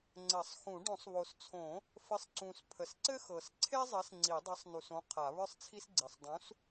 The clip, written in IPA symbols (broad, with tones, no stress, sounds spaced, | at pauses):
ŋ͡ǀ ɘ˨˩˦ sˤ x ũ˨˩˦ ɖ õ˨˩˦ sˤ β o˨˩ s t͡sʰ õ˨˩˦ | f ɘ˨˥ sˤ ǀ ũ˨˩ s pʰ ə˨˩ s ǀ ɘ˥ x ɤ˨˩ s ǀʰ e˥ zˤ ɘ˨˥ s ŋ͡ǀ i˨˩˦ dˤ ɤ˨˥ sˤ n u˨˩ s õ˨˥ qʰ a˨˩˦ β ə˞˥ sˤ t͡sʰ i˥ s ɡ͡ǀ i˨˩ sˤ dˤ ũ˨˥ s